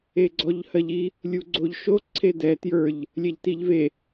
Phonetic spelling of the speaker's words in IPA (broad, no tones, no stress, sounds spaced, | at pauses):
e ɡ͡ǀ ɔ ʎ h ɜ ʎ i | lʲ u ɡ͡ǀ o ʎ ʃ o ǀʰ e d ɛ t j ə˞ ʎ | lʲ ɛ ʎ t i ʎ v e